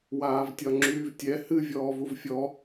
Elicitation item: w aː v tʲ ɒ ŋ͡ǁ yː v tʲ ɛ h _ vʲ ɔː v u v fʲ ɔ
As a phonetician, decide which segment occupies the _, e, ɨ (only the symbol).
ɨ